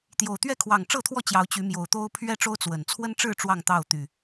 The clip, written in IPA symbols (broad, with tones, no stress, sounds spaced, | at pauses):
t̪ j o˨˩ ʊ̯ t̪ ɥ ɛ˥˨ kʰ w ɑ˨˩ ŋ ʈ͡ʂ ɤ˥˨ t̪ʰ w ɔ˥˨ t͡ɕ j ɑ˨˦ ʊ̯ t͡ɕ y˨˦ m j o˨˩ ʊ̯ t̪ o˦ ʊ̯ pʰ ɥ ɛ˦ ʈ͡ʂ o˦ ʊ̯ t͡s w ə˨˩ n t͡sʰ w ə˦ n ʈ͡ʂ ɻ̩˥˨ ʈ͡ʂ w ɑ˥˨ ŋ t̪ ɑ˥˨ ʊ̯ t̪ y˨˩